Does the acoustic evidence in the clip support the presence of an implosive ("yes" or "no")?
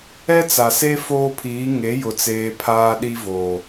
yes